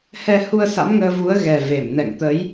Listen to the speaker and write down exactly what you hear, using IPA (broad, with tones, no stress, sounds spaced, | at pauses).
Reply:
h ɛ˧ h u˧ ə̯ s a̰˧˥ m ŋ əː˧ v u˨˦ ə̯ ɣ ɛ˨˩ v e˧˩ m n ɛ̰˧˨ ŋ t̪ ə˨˦ j